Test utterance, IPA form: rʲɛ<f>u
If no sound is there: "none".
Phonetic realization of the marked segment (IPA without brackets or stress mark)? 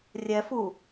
f